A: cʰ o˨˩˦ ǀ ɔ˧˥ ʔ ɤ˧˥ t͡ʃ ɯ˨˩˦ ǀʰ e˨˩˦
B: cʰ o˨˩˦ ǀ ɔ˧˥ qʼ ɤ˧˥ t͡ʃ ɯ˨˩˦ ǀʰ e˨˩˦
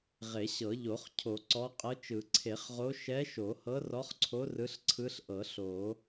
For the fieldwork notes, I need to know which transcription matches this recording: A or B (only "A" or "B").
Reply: B